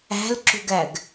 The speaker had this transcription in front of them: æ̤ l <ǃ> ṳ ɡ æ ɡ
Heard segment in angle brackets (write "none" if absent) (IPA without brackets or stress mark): ǁ